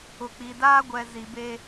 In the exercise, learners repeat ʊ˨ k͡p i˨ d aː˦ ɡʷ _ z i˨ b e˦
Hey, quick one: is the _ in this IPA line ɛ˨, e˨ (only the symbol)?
ɛ˨